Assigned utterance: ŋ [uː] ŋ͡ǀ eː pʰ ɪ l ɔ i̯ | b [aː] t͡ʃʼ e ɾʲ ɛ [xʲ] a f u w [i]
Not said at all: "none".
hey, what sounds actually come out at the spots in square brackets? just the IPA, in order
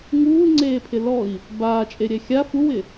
uː, aː, xʲ, ɪ

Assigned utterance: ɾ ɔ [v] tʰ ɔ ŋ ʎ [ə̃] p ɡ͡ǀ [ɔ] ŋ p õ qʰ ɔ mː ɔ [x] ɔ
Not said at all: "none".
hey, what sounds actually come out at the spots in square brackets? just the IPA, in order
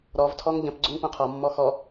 v, ə̃, ɵ, x

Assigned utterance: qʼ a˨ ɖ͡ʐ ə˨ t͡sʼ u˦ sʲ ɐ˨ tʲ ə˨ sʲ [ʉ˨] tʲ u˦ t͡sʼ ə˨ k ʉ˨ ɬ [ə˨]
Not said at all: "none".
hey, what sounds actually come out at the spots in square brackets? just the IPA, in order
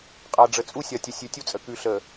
ʉ˨, ə˨

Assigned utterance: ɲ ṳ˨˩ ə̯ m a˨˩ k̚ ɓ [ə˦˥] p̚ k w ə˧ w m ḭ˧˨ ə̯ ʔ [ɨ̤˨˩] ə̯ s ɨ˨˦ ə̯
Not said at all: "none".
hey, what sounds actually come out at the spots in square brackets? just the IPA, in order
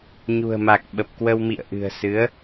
ə˨˩, ɨ̤˨˩

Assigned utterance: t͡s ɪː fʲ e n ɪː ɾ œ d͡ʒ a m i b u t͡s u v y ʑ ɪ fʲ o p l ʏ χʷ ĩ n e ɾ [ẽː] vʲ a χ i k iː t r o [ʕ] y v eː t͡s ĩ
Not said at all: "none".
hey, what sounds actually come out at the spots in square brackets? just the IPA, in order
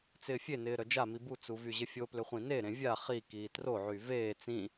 ẽ, ʕ

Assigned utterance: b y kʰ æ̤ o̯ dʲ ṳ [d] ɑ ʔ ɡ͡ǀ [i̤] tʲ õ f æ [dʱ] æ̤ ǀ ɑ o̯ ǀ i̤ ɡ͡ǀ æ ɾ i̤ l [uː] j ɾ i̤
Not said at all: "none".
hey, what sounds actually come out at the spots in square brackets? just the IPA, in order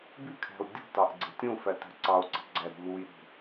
t, e̤, t, u

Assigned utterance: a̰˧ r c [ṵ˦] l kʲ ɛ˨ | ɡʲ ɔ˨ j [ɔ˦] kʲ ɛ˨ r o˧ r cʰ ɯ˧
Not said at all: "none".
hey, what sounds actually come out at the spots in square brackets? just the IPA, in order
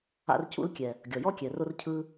ṵ˧, ɔ˦

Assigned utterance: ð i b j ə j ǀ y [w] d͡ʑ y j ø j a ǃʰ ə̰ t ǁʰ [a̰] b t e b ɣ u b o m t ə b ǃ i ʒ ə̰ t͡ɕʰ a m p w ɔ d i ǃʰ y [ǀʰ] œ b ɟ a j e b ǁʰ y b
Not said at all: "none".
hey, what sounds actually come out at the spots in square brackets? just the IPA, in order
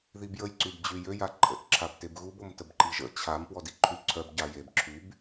b, a, ǀʰ

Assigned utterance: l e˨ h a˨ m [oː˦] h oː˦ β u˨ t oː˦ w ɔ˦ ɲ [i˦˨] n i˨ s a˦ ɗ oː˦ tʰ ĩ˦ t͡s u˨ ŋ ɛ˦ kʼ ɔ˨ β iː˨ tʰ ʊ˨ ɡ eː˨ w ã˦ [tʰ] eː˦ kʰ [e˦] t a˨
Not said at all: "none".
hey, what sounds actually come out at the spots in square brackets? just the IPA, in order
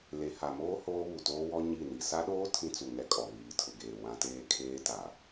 oː˦, i˦˨, t, eː˦

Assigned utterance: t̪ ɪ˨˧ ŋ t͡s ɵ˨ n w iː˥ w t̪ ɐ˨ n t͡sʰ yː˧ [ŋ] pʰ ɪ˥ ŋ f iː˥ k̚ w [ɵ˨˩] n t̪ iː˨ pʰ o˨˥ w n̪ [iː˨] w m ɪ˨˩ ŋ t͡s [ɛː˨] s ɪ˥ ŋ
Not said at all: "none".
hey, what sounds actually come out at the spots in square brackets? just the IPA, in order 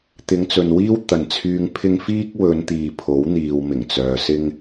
ŋ, ɵ˨˧, iː˨, œː˨

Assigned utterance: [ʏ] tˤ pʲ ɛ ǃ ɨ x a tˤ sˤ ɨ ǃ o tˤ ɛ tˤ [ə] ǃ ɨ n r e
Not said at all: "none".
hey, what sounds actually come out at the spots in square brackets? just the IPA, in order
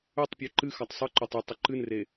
ʏ, ə

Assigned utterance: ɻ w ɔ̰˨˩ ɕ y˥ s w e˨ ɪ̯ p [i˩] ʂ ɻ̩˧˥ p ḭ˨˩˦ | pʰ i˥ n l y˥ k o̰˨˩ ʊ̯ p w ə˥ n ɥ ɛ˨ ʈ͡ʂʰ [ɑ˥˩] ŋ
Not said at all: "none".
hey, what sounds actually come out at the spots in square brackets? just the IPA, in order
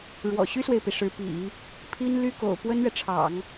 i˩, ɑ̰˨˩˦

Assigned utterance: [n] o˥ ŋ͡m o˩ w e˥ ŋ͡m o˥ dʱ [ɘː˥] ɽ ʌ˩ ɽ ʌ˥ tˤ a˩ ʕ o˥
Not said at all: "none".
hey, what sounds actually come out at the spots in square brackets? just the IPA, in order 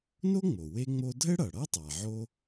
n, ɘ˥

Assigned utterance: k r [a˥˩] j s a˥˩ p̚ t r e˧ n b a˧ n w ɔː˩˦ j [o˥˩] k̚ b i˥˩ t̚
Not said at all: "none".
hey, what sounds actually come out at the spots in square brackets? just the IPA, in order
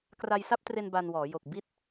a˧, o˨˩

